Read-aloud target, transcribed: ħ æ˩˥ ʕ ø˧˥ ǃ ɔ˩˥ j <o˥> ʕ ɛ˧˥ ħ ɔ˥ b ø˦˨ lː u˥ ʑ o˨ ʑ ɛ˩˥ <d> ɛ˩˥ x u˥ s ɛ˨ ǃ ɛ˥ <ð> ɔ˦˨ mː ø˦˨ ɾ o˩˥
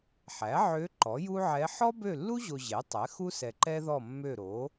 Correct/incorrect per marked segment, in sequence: incorrect: u˥, incorrect: tˤ, correct

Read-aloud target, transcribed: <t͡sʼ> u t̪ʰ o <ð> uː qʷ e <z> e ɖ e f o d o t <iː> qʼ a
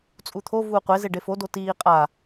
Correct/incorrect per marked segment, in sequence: correct, incorrect: v, correct, correct

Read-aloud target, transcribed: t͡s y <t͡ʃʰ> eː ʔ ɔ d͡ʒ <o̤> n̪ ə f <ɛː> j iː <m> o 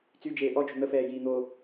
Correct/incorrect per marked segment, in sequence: incorrect: d͡ʒ, correct, correct, incorrect: n̪

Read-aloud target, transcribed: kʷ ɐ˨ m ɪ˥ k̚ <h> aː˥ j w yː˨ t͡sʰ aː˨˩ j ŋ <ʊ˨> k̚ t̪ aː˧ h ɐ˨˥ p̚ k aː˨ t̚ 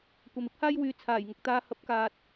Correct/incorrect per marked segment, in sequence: correct, correct

